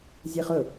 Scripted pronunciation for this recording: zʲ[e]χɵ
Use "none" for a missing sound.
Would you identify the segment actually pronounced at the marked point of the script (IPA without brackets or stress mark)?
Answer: e